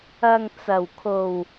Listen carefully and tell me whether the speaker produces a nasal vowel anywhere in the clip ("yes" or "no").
no